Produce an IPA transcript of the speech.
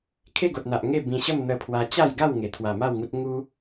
kʰ e˥˧ ɡ o˨ t̚ n̪ a˨ ʔ ŋ e˥˧ b ĩ˧ ɕ ə˥˧ m n̪ ə˧ pʰ w a˧ t͡ɕ a˥˧ j ɡ a˥˧ w ŋ e˨˩ t̪ʰ w a˨˩ m a˥˧ w ŋ u˦ t̚ ŋ u˦

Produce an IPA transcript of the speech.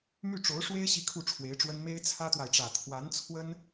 m y˥˩ ʈ͡ʂ o˧˥ ʊ̯ ʂ w e˥ ɪ̯ ɕ i˥˧ kʰ u˥˩ ʈ͡ʂʰ w e˧˥ ɪ̯ ʈ͡ʂ w ə˥ n m e˥ ɪ̯ t͡sʰ ä˥ t̪ w a˨ ɪ̯ ʈ͡ʂ ä˨˩ t̪ʰ w a˧˥ n t͡sʰ w ə˥ n

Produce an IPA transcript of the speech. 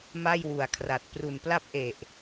m a˥˩ j w u˨˩ a̯ kʰ r a˨˩ t̚ p r u˨˩ n p l a˥˩ p̚ ʔ e˨˩ ʔ

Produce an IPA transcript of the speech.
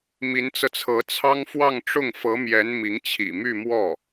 m i˧˥ n t͡s ɤ˧ t͡sʰ ɤ˧˥ t͡sʰ ɑ˥ ŋ f w ɑ˥˧ ŋ ʈ͡ʂ ʊ˥˩ ŋ f ɤ˧˥ m j ɛ˧˥ n m i˧˥ ŋ t͡ɕʰ ḭ˨˩ m y˥˧ m w ɔ˥˩

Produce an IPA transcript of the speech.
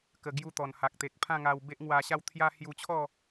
k ə˧ ɡ j u˥˧ t̪ ɔ˨˩ n h a˨ k̚ t̪ e˨ k̚ pʰ ã˥˧ ŋ a˧ w b e˦ ʔ ŋ w a˧ ɕ a˥˧ w t̪ʰ j a˦ h j u˧ t͡ɕʰ ɔ˥˧

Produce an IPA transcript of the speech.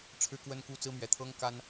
ʈ͡ʂʰ ɻ̩˦ k w ə˦ n k u˥˨ t͡s ɹ̩˦ m ɥ ɛ˨˦ t̪ʰ ɤ˦ ŋ k a˦ n

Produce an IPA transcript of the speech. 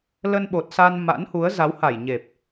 l ə˧ n ɓ o˨˩ t̚ s a˧ n m a̰˧˥ n h u˨˦ ə̯ z a˨˦ w h a˧˩ j ɲ e˨˩ p̚

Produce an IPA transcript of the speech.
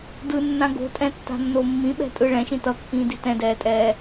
d ɯ nː ã ɡ o̤ tʼ ɛ̃ tː a̤ nː o mː ĩ ɓ ɛ̤ tʼ ɯ ɭ ɛ̃ ʃ ĩ t ʌ kː ĩː d i t ɛ̃ d ɛː tʼ ɛː

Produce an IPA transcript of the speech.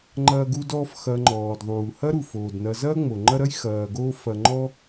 ŋ͡ǃ ɐː˦ ɡ u˦ d ɔː˦ f x ɐ˨ ŋ͡ǃ ɔː˩ d ðˤ uː˩ h ɐ˥ ɾ u˩ f oː˩ d n ɐ˨ z ɐː˥ ŋ͡m o˩ ŋ͡ǃ ɐ˦ ɾ ɐ˥ j x ɐː˨ ɡ oː˦ f ɐ˨ ŋ͡ǃ ɔ˥

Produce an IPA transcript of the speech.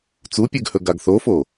t͡s u pʲ ʉ ɡ h ɵ ɡ a ɡ θ o f o

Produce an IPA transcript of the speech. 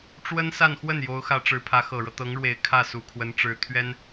ʈ͡ʂ w ə˥ n s a˥˧ n x w ə˥˩ n j o˧˥ ʊ̯ x ä˧˥ ʈ͡ʂ ɻ̩˧˥ pʰ ä˧˥ x ɤ˨˩ ɻ ɤ˦ t̪ ɤ˧˥ ŋ ɻ w e˨˩ ɪ̯ kʰ ä˥˩ s u˨˩ kʰ w ə˧˥ n ʈ͡ʂ ɻ̩˧˥ t̪ʰ ɥ ɛ˥ n

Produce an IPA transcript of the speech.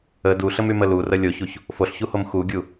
ə d u ɬ ə m y m ə l u r ə lʲ o ç u ç | f o ɬ ç u h o m x u ɡʲ u

